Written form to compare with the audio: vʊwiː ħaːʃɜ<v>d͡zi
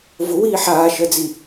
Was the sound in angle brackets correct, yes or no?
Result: no